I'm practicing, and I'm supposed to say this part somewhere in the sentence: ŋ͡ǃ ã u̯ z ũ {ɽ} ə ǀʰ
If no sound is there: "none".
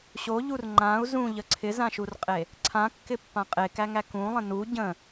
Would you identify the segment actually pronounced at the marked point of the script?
ʎ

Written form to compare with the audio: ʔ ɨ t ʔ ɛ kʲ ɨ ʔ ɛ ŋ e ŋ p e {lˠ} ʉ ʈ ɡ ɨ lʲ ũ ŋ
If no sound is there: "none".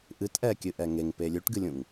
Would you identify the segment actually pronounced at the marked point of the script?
lʲ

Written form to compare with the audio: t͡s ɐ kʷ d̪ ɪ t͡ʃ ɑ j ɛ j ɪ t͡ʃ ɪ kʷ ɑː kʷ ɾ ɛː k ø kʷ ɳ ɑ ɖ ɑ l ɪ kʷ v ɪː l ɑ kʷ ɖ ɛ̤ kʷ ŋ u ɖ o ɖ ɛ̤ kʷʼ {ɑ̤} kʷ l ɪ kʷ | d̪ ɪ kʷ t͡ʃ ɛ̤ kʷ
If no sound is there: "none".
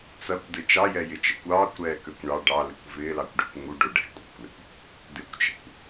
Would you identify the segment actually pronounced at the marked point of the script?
ɑ̤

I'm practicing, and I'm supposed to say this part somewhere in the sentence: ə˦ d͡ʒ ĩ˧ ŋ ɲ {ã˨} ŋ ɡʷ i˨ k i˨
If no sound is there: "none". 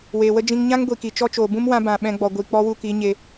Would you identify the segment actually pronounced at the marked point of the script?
ã˦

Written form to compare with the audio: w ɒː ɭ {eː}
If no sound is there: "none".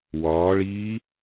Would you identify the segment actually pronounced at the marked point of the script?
iː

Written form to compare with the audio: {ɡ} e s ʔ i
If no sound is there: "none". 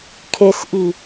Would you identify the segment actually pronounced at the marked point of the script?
kʰ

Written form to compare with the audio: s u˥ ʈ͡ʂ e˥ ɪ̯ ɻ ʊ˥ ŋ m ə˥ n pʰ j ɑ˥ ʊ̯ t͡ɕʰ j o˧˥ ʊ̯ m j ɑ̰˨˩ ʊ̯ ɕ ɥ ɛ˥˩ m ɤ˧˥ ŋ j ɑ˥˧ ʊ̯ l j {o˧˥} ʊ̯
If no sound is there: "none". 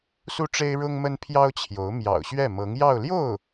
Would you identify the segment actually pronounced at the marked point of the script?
o˥˩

